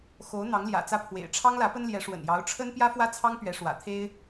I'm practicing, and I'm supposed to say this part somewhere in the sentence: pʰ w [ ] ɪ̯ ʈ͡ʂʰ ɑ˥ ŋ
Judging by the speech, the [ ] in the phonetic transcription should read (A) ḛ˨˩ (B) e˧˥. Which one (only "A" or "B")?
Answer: A